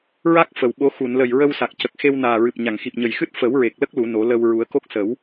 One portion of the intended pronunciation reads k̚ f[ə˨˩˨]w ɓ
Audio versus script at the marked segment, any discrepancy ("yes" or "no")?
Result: no